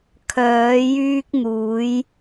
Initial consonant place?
velar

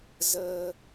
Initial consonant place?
alveolar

